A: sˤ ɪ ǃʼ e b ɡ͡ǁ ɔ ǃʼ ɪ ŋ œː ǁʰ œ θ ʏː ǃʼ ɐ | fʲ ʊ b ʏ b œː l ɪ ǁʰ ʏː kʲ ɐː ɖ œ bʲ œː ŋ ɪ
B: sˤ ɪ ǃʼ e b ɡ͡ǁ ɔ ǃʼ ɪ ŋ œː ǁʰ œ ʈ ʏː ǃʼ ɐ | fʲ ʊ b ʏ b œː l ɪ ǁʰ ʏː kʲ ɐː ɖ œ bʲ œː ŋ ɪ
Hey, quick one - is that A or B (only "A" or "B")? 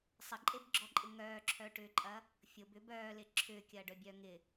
B